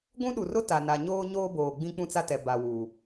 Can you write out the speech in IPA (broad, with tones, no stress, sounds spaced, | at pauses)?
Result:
ɡʷ ũ˦ ɗ u˨ r ʊ˦ t a˨ n a˨ ɲ oː˦ ɲ oː˦ b oː˨ ɡ͡b ĩ˦ k͡p ũ˦ t͡s a˦ t ɛ˨ b a˨ w uː˨